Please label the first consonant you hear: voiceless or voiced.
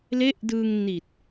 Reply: voiced